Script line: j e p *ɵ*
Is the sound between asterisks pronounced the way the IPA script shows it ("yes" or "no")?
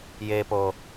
no